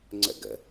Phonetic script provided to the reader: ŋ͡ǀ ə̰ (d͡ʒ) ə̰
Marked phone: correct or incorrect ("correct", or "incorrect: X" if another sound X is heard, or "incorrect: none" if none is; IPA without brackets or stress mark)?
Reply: incorrect: ɡ